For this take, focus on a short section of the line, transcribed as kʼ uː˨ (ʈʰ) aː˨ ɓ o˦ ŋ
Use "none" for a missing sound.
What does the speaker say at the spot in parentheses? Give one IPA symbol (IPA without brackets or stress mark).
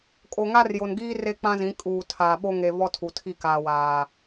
tʰ